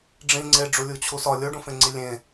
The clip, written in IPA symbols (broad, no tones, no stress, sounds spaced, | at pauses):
ɖ͡ʐ ĩ ŋ͡ǀ e ɖ͡ʐ u lʲ u t͡ɕʰ u s ɒ lʲ o ɖ ũ f ẽ ŋ͡ǀ i lʲ ẽ